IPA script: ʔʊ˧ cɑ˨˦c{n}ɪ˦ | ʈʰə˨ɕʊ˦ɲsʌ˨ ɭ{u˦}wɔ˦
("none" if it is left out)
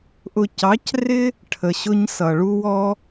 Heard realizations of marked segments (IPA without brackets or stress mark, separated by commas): r, u˦